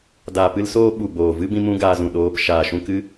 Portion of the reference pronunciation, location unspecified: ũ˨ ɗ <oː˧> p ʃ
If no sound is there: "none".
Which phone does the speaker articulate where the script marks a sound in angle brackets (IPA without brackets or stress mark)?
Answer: oː˧